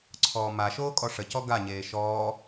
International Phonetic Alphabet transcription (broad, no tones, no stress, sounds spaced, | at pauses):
ǀʰ ɔː m a ʃ oː kʼ ɔ ʂ ə c ɔ ɡ a ɲ eː ʃ ɔː